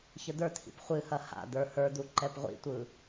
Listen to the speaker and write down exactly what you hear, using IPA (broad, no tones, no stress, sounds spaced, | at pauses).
ç ə d̪ ə˞ t̪ʰ ḭ p χʷ ɨ h ɐ h a̰ d̪ ə˞ h ə˞ d̪ u ǃ ɛ p ʁʷ ḭ tʷ ɯ